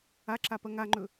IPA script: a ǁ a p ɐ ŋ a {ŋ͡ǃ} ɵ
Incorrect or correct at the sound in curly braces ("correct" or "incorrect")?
correct